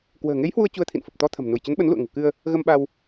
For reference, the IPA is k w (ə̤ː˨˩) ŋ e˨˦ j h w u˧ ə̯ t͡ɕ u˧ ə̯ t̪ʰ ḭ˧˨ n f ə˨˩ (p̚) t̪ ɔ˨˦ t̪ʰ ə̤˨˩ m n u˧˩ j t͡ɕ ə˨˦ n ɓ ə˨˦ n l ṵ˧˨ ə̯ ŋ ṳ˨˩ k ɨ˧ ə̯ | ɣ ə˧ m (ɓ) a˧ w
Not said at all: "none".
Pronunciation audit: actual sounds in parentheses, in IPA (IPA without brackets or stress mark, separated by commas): ə̤ː˨˩, p̚, ɓ